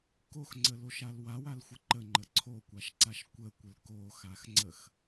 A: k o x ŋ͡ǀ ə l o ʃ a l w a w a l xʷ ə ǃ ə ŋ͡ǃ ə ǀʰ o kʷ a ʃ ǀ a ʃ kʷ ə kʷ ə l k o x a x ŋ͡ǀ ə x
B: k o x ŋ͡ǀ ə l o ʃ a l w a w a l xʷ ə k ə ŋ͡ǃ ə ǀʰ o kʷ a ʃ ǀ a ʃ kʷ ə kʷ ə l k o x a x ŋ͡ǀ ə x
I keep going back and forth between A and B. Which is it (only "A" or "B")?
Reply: A